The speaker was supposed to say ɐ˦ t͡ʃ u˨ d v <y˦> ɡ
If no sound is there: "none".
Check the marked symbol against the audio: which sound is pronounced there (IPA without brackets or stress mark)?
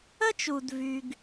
y˦